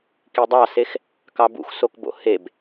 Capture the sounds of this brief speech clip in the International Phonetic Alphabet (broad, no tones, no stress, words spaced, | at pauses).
kidˤɑsex | kɑbṵxsokbo̰ heb